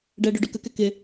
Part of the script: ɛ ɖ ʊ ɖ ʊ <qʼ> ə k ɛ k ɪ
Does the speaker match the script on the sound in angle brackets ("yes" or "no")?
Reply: no